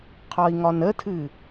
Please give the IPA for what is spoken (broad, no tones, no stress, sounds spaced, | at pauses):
qʰ ɒ i̯ ŋ ɒ n ə tʰ ɨ